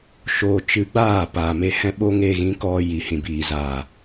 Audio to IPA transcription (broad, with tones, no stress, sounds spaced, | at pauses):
ʃ oː˧ t͡ʃ ɨ˧ ɡ͡b aː˦˨ p aː˨ m e˧ h ɛ̃˦ ɓ o˦ ŋ e˧ ɣ ĩ˨˦ k ɔ˧ j i˨ h ĩ˨ b iː˨ z aː˨